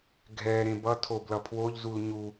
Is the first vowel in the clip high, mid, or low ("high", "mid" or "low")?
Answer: mid